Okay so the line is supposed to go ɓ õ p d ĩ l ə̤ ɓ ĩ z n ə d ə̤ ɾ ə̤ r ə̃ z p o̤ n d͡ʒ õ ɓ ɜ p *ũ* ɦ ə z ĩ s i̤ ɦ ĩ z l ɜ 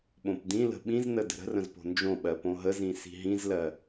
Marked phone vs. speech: incorrect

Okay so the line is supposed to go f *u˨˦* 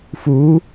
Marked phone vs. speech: correct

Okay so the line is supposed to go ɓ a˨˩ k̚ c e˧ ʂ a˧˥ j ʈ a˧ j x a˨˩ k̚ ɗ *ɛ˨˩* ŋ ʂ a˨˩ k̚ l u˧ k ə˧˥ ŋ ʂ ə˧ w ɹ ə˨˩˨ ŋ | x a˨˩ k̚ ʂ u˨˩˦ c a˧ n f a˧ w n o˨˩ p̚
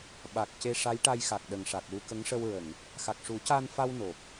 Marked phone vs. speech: incorrect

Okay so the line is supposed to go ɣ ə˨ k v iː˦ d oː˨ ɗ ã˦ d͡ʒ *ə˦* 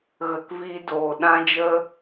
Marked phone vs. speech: correct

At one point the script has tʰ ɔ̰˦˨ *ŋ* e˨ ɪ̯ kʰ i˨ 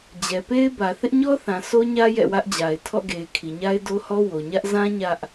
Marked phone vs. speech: incorrect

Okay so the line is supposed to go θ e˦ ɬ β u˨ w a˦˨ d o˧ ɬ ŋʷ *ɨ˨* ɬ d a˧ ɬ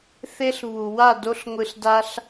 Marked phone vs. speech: correct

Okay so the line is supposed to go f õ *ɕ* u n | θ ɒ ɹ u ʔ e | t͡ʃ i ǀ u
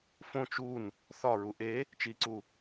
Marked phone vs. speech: incorrect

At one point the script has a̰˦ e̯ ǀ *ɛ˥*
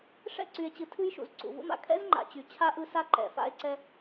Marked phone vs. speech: correct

